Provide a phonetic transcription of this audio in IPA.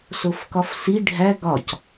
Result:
s o f k ɒ f s i ɖʱ æ ɡ ɒ c

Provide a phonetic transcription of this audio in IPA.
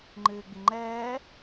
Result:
ŋ͡ǃ ɨː ɡ͡b i ŋ͡ǃ ɛː

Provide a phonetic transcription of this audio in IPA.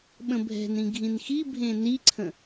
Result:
ɓ ə̃ bʱ ɛ̤ n ĩ ɡʱ ĩ n x i bʱ ẽ n i ǀʰ ə̃

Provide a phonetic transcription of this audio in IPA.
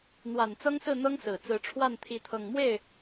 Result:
n̪ w a˨˩ n t͡s ɤ˥ ŋ s ɹ̩˥˩ n̪ ɤ˥ ŋ s ɹ̩˨˩ t͡s ɹ̩˧˥ ʈ͡ʂʰ w a˥˩ n t̪ʰ i˧˥ t̪ʰ ɤ˨˩ ŋ m w e˥˩ ɪ̯

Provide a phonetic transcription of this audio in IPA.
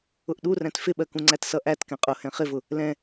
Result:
ʊ ʔ ɗ u r æ̃ t f ɪ ɓ ɜ k ũ ŋ͡ǀ æ t s ʌ ʔ æ t k ɛ̃ qʼ ʊ h ɛ̃ χ ɪ v ʊ | l ɛ̃

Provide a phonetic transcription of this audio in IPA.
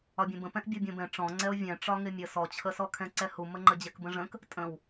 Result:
ɒ bʲ ɛ̃ b ə̃ p ɛ̃ ʔ bʲ ɔ bʲ õ b ɛ̃ ʈ͡ʂ ɔ̃ ŋ͡ǀ ɛ o̯ vʲ ɛ̃ ʈ͡ʂ ɒ ŋ ɪ mʲ ə s ɔ t͡ɕʰ ə s ɔ kʰ ɛ̃ ǀ ɛ h u m ə ŋ͡ǃ ə d͡ʑ ɛ k b ə̃ ʐ ə̃ k | tʼ ə̃ w

